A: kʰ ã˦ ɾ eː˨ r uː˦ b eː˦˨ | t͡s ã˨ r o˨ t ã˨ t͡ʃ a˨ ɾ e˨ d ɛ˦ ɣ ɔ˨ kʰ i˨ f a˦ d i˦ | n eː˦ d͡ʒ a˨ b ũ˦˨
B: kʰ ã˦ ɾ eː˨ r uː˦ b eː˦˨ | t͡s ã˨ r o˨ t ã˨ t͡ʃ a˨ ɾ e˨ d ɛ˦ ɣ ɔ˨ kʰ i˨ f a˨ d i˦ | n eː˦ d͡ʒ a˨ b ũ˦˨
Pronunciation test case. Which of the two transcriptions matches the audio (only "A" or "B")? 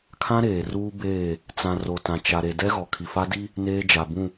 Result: A